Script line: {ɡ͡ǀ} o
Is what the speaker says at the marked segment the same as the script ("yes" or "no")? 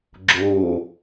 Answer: no